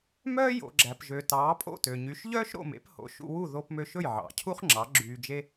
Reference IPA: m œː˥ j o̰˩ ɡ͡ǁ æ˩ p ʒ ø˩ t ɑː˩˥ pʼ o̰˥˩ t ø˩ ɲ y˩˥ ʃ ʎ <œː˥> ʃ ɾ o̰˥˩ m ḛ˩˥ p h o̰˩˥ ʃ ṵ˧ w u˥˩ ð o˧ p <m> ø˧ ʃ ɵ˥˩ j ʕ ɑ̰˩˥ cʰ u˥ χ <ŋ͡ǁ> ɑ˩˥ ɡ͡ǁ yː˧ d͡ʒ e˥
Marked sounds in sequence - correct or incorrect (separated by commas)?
correct, correct, correct